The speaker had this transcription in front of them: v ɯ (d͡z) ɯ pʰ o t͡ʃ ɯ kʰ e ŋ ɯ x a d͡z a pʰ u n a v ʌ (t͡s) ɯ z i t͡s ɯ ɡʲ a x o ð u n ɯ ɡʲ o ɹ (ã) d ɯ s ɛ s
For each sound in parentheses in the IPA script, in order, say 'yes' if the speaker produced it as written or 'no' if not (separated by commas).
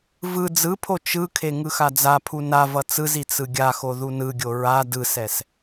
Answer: yes, yes, no